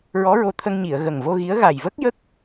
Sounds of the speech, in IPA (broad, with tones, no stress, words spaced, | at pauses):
ɹɔ˧˥ɹo˧t̪ʰə˧ŋ ɲi˨˩˨ə̯ ɣə˨˩ŋvo˧ɣi˧˥ə̯ ɣa˨˩jvə˦˥k̚jə˦˥k̚